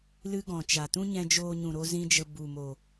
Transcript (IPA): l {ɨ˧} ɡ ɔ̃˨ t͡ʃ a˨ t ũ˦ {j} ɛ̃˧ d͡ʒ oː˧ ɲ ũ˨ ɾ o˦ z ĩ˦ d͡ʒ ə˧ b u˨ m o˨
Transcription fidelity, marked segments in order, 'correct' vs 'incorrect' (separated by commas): incorrect, incorrect